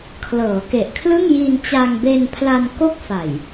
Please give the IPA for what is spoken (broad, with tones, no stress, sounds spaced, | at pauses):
kʰ l ɤː˩˦ k e˨˩ ʔ kʰ l ɯ˥˩ ŋ j i˧ n t͡ɕ a˧ ŋ b e˧ n pʰ l a˧ n k o˥˩ k̚ f a˨˩ j